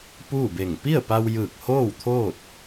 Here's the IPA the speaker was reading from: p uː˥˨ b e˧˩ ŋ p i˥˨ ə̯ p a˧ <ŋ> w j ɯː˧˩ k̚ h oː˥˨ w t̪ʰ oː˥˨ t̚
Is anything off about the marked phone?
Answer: yes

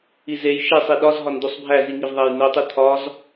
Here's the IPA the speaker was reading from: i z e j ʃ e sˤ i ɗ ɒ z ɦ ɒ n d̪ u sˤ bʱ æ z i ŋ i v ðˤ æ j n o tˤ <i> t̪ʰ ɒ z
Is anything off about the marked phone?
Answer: no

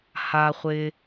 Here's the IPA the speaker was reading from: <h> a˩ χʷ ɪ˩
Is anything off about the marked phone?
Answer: no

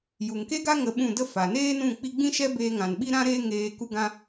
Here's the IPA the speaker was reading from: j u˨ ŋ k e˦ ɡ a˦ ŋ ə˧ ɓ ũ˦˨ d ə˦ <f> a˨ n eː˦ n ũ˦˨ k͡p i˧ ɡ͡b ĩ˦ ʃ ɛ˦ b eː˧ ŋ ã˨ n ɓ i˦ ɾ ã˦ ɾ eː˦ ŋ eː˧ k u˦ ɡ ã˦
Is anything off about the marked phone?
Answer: no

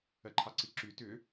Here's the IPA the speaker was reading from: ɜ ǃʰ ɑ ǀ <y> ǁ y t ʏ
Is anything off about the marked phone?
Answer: yes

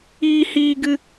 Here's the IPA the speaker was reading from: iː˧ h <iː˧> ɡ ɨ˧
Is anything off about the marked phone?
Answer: no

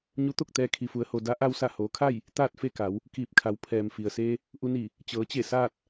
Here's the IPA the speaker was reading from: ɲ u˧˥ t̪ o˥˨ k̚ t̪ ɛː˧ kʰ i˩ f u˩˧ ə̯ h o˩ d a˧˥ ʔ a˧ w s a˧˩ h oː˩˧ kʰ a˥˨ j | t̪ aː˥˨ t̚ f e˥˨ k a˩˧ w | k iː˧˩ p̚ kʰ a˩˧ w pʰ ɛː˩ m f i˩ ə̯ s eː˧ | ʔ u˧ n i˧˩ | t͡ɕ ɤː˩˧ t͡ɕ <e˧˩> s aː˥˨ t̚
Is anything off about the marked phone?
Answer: no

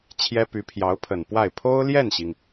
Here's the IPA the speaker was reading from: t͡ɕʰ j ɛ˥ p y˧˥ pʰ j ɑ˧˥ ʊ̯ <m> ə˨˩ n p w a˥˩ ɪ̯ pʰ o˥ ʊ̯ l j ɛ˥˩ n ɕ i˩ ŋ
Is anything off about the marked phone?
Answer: yes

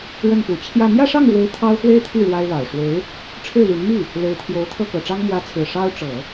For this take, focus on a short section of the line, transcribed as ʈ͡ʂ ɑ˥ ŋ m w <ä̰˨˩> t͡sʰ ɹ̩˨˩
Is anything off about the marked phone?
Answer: yes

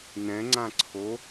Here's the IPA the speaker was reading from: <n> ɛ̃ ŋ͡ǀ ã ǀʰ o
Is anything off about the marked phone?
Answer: no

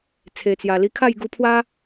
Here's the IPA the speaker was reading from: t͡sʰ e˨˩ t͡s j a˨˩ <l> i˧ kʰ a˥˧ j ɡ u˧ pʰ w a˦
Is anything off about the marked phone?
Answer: no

